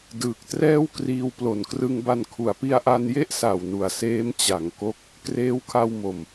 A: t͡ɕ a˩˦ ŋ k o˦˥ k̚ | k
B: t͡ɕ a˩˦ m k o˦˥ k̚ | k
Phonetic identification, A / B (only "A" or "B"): A